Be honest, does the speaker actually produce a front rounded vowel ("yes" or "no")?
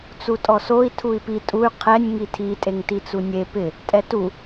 yes